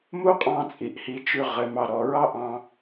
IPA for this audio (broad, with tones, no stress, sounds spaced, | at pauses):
m u˥ qʼ ɑ̃˥˧ t͡sʼ i˩˧ ʔ h i˧ t͡ʃ ʉ˧ ʁ ɘ˩˧ m ɑ˧˩ ɾ ɔ˧˩ ɹ ɑ˥ ʔ ɑ̃˧